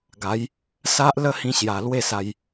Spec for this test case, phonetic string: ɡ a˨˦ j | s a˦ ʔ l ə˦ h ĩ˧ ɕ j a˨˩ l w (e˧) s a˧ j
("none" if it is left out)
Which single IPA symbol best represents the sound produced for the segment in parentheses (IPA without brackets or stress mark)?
e˥˧